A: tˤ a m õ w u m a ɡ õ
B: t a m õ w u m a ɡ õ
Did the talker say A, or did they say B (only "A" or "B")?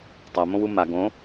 A